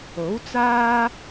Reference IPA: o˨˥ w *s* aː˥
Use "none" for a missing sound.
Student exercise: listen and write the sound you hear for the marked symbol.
t͡s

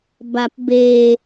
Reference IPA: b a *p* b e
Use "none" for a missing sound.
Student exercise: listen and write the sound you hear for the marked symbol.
p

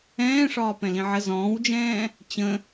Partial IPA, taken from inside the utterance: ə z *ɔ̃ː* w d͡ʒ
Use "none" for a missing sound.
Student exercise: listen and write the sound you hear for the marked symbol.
ɔ̃ː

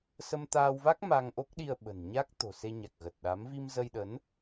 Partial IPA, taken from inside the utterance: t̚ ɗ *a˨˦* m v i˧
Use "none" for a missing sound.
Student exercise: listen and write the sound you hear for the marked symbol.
a˨˦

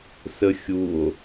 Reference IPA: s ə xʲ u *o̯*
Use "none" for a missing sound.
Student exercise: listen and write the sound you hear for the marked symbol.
o̯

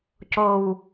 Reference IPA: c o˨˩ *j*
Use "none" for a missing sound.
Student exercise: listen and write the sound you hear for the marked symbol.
w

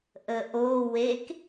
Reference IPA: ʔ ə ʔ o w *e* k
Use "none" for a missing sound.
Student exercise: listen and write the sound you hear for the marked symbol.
e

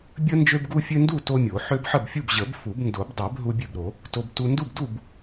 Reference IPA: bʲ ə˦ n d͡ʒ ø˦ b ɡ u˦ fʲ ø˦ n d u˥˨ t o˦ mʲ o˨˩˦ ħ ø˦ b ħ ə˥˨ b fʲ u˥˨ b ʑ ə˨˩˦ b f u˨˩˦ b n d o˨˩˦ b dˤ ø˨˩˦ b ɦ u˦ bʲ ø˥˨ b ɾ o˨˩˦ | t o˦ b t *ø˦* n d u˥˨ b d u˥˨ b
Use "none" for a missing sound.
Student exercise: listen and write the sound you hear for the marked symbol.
u˦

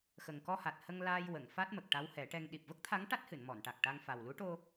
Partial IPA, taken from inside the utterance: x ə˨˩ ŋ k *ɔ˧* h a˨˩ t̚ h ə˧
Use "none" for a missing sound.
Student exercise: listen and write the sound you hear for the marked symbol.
ɔ˧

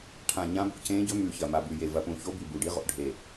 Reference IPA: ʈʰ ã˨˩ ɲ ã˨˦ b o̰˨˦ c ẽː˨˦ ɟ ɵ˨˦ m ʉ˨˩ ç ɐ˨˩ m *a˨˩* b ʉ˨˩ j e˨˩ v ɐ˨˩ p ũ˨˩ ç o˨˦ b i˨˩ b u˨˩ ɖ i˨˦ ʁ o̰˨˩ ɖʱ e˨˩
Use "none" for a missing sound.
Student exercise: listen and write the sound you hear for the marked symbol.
a˨˩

